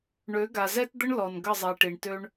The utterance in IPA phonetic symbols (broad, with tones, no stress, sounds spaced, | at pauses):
ɳ ø˨˦ ɡ a˨ z ɛ˦ t d̪ ə˦ ɳ l ɔ˨ n ɡ ə˦˨ zˤ ɛ˨ ʈ i˨ ɳ t ø˦ ɳ